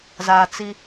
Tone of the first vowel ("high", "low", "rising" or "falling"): low